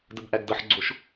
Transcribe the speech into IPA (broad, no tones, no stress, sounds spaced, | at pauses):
d ə b ʔ æ ɡ d ʌ ħ ɡ͡ǀ o ʃ